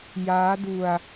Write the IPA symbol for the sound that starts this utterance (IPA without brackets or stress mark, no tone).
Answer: j